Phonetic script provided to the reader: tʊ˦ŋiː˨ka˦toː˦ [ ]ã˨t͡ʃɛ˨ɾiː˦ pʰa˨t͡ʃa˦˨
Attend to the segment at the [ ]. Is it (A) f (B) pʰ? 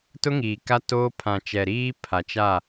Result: B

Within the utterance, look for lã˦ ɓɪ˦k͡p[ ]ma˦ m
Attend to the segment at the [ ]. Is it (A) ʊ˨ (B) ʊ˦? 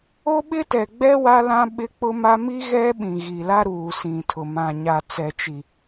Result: B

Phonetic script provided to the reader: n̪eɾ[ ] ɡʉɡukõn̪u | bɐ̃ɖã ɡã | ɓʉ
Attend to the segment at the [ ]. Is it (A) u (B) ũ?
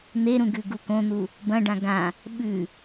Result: B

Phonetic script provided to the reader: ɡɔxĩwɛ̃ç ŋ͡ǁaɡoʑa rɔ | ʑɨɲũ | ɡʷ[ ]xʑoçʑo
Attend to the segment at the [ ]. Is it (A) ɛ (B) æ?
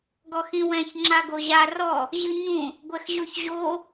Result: A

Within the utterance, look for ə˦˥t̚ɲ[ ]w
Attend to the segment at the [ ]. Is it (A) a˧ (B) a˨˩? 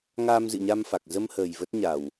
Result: B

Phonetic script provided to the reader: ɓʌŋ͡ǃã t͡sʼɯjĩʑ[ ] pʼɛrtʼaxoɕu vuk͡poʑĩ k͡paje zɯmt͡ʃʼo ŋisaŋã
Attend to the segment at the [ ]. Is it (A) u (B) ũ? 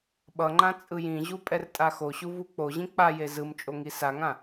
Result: A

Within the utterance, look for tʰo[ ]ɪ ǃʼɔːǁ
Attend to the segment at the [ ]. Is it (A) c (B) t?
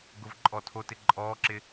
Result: B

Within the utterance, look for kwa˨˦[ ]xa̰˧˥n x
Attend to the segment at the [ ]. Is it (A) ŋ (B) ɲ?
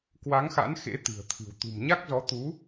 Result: A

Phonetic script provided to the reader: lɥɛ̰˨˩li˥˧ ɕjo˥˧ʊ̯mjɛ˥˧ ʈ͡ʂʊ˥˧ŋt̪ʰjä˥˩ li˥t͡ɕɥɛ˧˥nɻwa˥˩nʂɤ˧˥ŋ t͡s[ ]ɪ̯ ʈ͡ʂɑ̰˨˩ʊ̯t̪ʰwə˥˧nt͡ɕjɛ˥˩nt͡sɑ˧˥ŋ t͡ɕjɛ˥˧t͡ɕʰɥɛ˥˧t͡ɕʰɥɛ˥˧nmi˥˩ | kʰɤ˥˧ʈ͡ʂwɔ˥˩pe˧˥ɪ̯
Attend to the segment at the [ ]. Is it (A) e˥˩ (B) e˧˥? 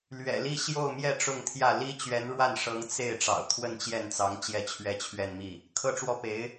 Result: A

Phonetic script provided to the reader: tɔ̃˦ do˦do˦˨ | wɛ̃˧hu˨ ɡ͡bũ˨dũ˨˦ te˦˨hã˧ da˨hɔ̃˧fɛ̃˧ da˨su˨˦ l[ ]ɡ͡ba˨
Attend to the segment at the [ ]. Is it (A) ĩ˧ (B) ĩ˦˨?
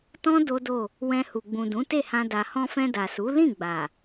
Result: B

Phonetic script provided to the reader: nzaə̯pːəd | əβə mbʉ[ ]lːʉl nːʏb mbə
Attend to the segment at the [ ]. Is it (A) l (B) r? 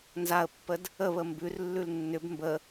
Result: B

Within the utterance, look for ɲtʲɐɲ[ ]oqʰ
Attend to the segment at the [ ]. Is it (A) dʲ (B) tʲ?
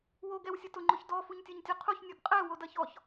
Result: B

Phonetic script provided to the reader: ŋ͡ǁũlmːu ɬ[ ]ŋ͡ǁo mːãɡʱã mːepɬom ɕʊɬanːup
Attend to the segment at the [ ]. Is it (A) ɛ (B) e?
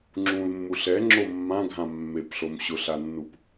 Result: A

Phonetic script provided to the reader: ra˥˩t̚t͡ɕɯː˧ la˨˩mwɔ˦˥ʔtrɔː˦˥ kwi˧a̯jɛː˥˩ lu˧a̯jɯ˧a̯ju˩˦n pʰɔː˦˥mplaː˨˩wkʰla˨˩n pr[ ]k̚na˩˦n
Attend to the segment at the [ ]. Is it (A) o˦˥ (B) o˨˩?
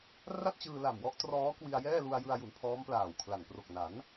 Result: B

